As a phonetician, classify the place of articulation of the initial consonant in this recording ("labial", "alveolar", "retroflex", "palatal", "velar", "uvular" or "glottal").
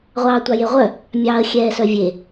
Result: uvular